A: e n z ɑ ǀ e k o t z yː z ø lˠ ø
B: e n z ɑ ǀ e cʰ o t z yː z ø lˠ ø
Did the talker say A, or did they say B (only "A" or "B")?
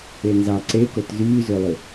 A